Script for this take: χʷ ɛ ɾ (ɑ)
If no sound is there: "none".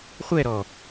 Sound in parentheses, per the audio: ɔ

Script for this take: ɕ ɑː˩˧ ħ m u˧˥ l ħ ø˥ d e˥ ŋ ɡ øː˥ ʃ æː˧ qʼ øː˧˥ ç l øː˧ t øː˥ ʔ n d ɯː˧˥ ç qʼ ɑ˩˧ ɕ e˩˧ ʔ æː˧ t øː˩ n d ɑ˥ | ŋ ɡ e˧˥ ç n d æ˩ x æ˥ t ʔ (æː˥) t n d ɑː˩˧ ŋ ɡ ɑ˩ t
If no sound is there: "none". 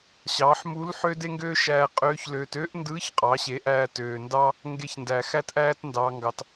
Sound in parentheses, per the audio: æː˥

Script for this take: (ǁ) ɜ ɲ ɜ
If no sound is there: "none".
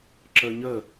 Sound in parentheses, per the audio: ǁ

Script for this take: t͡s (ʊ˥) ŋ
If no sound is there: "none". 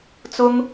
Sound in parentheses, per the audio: ʊ˥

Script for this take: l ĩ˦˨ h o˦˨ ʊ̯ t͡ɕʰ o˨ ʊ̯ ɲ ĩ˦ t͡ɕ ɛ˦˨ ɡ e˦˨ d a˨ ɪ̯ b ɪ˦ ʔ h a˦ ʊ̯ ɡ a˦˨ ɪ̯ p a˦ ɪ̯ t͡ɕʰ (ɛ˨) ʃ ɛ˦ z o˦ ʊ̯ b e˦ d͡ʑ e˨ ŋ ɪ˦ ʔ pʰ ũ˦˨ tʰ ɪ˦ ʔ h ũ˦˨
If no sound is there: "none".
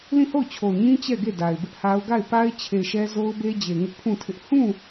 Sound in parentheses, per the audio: e˨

